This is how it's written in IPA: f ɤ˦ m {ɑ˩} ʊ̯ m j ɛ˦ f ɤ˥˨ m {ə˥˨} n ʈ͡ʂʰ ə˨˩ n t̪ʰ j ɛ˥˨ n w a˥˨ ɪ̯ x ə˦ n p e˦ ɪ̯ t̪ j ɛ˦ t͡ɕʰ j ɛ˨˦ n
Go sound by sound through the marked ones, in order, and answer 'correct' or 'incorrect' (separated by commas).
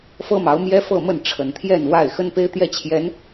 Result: incorrect, correct